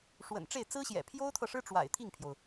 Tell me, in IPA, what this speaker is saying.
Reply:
ʂ w ə̰˨˩ n ʈ͡ʂ e˥˩ ɪ̯ t͡s ɹ̩˥ ɕ j ɛ̰˨˩ pʰ j o˥ ʊ̯ t̪ʰ ɤ˨ ʂ ɻ̩˥ ʈ͡ʂ w a̰˨˩ ɪ̯ t̪ʰ i˥˩ ŋ pʰ j o˩ ʊ̯

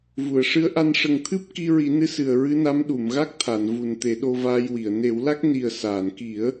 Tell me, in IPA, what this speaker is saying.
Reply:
v u˨˩˨ ə̯ ʂ ɨ˧˥ ə̯ ʔ a˧ n ʂ ə˨˩ ŋ t̪ʰ ɨ˦˥ p̚ k i˧ ɹ i˨˩˦ n ɨ˧˥ s ɨ˨˩ ə̯ ɹ ɨ˧˥ n a˧˥ m ɗ u˨˩˨ m ɣ a˦˥ k̚ t̪ʰ a˨˩˨ n v u˨˩ n t̪ e˨˩˦ ɗ o˧ v aː˧ j w i˨˩˨ ə̯ n e˨˩˦ w l a˦˥ k̚ n i˨˩ ə̯ s aː˨˩˨ n k i˨˩˦ ə̯

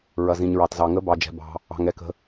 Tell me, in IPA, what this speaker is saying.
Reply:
ɹ ɐ˨ z ĩ˨ ɲ ɹ ɑ˨ t z ɑ˨ ŋ ə˧˥ b ɑ˨ d͡ʒ ɛ̤˨ b ɑ̤˨ | ɑ̤˨ ŋ ɛ˨ k ə̤˨

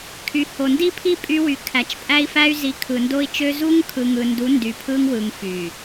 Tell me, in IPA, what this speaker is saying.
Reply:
kʰ y˨ h o˨ n d i˦ pʰ i˦ pʼ y˦ w y˨ kʰ æ˨ t͡ʃ pʼ æ˦ i̯ f æ˦ y̯ z i˨˦ kʰ ɯ˨ n d o˦ i̯ t͡ʃ ø˦ z u˦ ŋ kʰ ɯ˨ ŋ ɯ˨ n d u˨˦ n d y˨ pʰ ɯ˦ ŋ w ɯ˨ ŋ f y˨

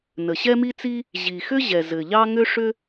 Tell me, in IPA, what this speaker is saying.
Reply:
n ə˩ ɕ ɛ˥ m i˥ t͡s i˥ | ʑ i˩ x ʏ˥ ʑ ɛ˩ z ɘ˩ ʎ ɑ˥ ŋ ʏ˥ ʂ ʏ˥

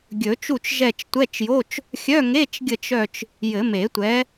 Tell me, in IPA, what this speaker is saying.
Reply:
ɡʲ ɵ˨˩˦ t͡ʃ u˦˨ t͡ʃ ʒ ɛ˦˨ t͡ʃ tʷ ɛ˧˥˧ t͡ʃ j o˧˥˧ t͡ʃ | xʲ œ˧˥˧ ŋ e˧˥˧ t͡ʃ ɡʲ ə˦˨ t͡ʃ œ˦˨ t͡ʃ | j ɘ˨˩˦ m e˨˩˦ tʷ ɛ˨˥

